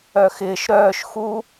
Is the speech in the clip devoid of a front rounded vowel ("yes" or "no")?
no